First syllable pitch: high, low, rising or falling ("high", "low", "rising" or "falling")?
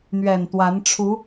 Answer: low